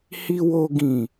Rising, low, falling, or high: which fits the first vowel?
low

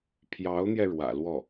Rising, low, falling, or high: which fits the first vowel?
rising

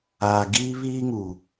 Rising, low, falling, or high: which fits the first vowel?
low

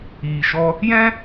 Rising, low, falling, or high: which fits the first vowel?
low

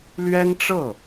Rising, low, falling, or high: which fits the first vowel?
high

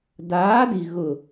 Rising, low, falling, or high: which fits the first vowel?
rising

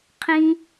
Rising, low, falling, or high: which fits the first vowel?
low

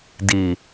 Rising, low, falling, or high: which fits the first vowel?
low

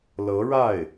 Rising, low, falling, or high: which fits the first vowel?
rising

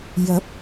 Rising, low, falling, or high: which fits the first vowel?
rising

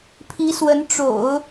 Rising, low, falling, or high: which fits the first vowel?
rising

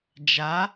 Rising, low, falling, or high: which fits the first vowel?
rising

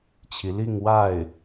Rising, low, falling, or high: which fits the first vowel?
rising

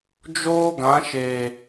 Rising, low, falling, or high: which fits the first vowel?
high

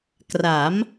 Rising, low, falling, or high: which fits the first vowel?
rising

